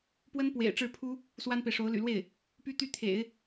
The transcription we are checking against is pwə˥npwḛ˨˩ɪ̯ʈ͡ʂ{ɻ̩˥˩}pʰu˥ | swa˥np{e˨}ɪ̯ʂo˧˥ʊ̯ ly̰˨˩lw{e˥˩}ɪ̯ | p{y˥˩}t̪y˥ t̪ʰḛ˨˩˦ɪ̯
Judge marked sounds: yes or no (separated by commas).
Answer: yes, yes, yes, no